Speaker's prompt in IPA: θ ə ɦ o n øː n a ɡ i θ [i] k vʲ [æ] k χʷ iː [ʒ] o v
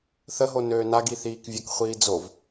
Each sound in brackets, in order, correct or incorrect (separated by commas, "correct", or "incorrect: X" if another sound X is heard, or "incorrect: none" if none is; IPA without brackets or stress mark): incorrect: iː, incorrect: ə, incorrect: d͡z